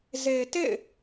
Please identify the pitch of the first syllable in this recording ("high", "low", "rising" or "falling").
low